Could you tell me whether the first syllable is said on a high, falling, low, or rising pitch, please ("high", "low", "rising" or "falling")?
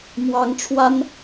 high